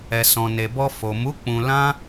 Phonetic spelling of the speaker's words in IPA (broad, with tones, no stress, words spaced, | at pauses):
ɛ˨sɔ̃˨ne˨bɔ˧ fo˨mu˨˦ k͡pũ˧ lã˦